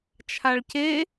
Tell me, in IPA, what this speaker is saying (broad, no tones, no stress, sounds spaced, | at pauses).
t͡ʃʰ a ɭ c e